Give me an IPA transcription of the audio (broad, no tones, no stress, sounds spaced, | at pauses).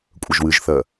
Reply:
kʷʼ ə ʒ w ɨ ʒ θ ɜ